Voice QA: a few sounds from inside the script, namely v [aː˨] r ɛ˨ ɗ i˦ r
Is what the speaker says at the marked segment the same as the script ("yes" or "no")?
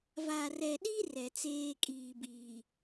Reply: no